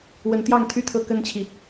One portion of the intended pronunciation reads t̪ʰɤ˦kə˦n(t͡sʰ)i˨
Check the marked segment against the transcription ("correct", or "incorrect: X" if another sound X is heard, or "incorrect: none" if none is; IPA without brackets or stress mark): incorrect: t͡ɕʰ